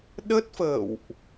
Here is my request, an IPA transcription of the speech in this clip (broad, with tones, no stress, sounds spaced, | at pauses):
ɗ ə˦˥ t̚ f ə̰ː˧˨ w ʔ